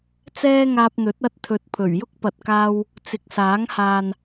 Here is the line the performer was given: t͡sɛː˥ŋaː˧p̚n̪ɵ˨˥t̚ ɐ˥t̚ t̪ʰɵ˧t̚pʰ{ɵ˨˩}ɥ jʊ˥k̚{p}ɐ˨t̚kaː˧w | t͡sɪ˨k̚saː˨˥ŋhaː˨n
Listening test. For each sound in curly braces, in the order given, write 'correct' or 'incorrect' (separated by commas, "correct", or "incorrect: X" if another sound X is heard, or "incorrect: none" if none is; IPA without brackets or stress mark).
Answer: correct, correct